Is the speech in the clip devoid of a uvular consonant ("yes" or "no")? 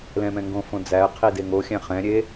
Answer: no